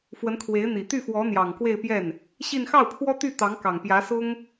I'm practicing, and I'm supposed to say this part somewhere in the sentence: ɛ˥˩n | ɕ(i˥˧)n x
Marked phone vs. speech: correct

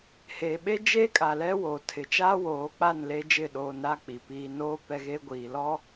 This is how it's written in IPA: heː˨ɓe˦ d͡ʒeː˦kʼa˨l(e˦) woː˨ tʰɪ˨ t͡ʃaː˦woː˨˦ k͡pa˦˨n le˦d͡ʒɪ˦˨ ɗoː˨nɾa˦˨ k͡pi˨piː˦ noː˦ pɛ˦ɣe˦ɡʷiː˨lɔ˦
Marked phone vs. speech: incorrect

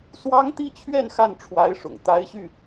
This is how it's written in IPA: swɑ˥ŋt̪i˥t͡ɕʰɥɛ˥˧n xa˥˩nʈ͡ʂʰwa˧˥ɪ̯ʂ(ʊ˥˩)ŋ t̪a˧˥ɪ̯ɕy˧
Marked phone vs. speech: incorrect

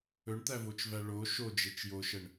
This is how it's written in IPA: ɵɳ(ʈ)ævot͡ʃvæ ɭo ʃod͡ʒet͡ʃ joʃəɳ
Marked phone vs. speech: incorrect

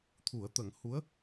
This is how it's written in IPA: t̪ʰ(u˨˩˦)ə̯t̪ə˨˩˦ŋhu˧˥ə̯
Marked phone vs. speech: correct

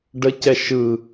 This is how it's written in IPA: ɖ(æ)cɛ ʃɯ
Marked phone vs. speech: incorrect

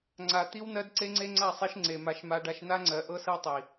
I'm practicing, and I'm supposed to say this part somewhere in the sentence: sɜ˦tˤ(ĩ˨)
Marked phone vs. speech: incorrect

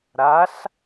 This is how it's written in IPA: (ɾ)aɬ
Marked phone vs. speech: correct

